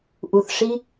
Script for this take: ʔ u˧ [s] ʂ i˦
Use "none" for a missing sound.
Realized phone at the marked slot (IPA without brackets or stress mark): θ